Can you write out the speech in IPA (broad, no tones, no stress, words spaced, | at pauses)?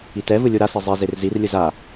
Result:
itɛvɯ lʲuɾasi zˤezer zirlʲɯ za